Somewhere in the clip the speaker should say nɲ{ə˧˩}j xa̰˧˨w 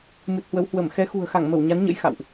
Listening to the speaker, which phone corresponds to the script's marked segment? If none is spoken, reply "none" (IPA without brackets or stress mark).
ə̰˧˥